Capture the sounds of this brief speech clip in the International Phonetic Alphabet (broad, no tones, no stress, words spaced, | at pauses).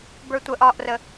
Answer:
bə˞tʷəʔ ɒʔrə